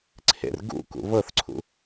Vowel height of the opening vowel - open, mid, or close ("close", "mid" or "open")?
mid